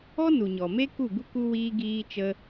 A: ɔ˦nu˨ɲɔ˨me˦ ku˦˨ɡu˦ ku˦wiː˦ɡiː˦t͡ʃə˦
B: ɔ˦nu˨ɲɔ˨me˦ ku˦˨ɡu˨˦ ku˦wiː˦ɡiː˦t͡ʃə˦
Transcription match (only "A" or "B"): A